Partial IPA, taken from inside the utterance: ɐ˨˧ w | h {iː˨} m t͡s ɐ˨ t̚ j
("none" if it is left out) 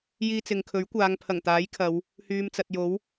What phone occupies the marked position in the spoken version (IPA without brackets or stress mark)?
yː˨